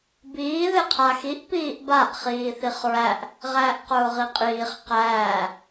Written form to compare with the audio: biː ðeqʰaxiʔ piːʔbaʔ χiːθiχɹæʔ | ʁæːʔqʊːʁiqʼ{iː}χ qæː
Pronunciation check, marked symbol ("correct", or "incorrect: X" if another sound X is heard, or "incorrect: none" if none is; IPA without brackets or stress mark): correct